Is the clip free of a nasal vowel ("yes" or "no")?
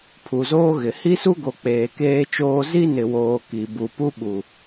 yes